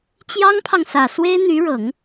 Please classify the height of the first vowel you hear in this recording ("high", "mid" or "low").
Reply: low